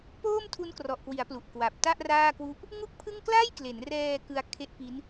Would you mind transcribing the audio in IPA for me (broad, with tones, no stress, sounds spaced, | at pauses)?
p oː˥˩ m tʰ u˦˥ n k r ɔ˨˩ ʔ k w i˩˦ a̯ p l u˨˩ ʔ k w a˨˩ p̚ t a˥˩ ʔ r aː˥˩ k w u˥˩ ʔ | ŋ u˥˩ k̚ pʰ ɯ˥˩ ŋ k l a˥˩ j k l e˩˦ n r ɛː˧ k ɯ˧ a̯ kʰ e˦˥ ʔ p i˦˥ n